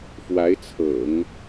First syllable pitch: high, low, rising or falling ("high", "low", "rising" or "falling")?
rising